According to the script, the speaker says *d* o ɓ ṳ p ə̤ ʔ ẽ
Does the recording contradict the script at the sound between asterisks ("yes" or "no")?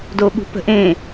no